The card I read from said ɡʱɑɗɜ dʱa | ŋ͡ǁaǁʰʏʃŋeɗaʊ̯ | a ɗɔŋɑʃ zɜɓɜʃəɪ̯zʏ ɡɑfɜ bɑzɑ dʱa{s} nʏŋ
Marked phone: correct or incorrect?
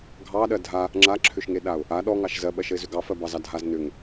incorrect